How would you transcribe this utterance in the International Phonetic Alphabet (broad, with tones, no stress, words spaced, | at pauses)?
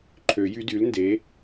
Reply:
ǃʰø˨˩˦jy˧˥dy˩˥lnde˩˥